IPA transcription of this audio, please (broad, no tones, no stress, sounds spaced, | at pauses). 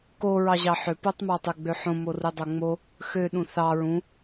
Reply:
k o ɹ ɑ ʑ ɑ ħ ø p o tˤ m ɑ tˤ ø ɡ͡b ø ħ õ m o r ɯ dˤ o ŋ͡m o | x ø ɗ ũ θ ɑ ɹ ũ